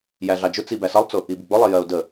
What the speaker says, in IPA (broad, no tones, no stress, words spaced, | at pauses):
jæɮɑd͡ʒʊ t͡sibæsʌlˠt͡sʊ | ibɪɡ͡bʊ lˠɪjɜʊ̯də